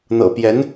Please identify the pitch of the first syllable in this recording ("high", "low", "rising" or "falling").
low